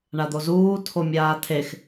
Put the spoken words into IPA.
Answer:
ɳ a d̪ o z uː tʰ o mʲ aː tʰ e x

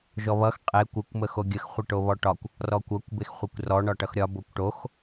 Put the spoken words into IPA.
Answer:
ʒ ɔ β ʌ x qʼ e kʷ ɪ kʷ m ə x o ɡʲ ə x χʷ ə ʈ o β ɔ ʈ ɒ kʷ | r ɔ kʷ ʌ kʷ b e x χʷ e kʷ r ɔ ɳ ɒ ʈ ʌ x ɾʲ ɒ b o kʷ ʈ o x

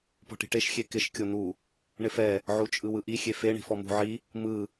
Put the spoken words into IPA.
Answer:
p ɔ̤ ʈ i̤ ʈ e ʃ xʲ e k ɪ ʃ kʲ o n̪ u | ɳ ɪ f ɛ | ʕ u t͡ʃʼ ɯ w ɯ ʔ i xʲ e f e ɳ i̤ f ɔ m ṳ ʕ i | m ɯ

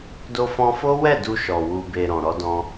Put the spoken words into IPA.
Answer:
d o˧ f ɔ̃˧ f o˦ w ɛ˦˨ d u˧ ʃ ɔ˨ w u˨ b e˨ ɾ ɔ̃˨ ɾ ɔ˧ d ɔ̃˧

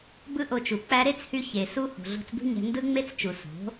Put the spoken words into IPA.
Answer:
b ɯ˦ ʔ o˧ t͡ʃ u˨ k͡p æ˧ ɾ e˦ t͡s h y˧ ç e˨ s u˦ h o̤˨ ɮ o̤˧ t͡s b ṳ˦ ɲ æ̤˧ n d ɯ˦ ŋ͡m e˦ t͡s t͡ʃ u˨ s o̤˨˦

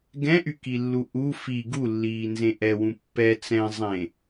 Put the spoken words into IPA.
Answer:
ɡ ɛ̃ ʔ y k i lː u ʔ u f i ɡ u lː iː n z ẽ ʔ ɛ w ũ pː ɛ t͡s ɛ̃ zˤ ẽ

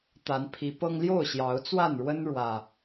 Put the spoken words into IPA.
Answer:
t̪ a˨˦ n pʰ i˨˦ p ɤ˦ ŋ l j o˥˨ ʊ̯ ɕ j ɑ˨˦ ʊ̯ t͡s w a˥˨ n ɻ w ə˦ n ɻ w ä˨˩

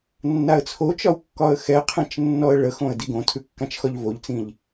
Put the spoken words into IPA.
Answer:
nː a ə̯ t͡sʰ o t͡ʃ ɒ w kː ɒ ə̯ x ɛ qʰ ɛ̃ t͡ʃ nː ɔ ə̯ ɭ ə x õ ə̯ d i ɡ õ tʰ ʉ kː ã t͡ʃ x ɒ ʎ v o ʎ t͡s ĩ ʎ

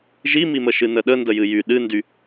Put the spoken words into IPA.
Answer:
ʒ i m i m ə ʃ ɨ n ə ɗ ə n d ə j ɨ j y ɗ ɨ n d y

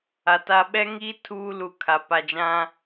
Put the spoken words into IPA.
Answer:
a˨ t a˦ ɓ ɛ˦ ŋ iː˦ tʰ uː˦ l u˨ kʰ a˨ p a˨ d͡ʒ ã˦

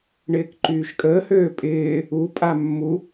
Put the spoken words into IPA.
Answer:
ɳ ɪː k ǃ yː ʃ kʼ əː h øː pʼ ɪː | u pʼ a mː u

